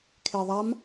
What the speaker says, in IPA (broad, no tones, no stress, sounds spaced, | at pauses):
kʰ e ðˤ a m